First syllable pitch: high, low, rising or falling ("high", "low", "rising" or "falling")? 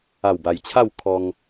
low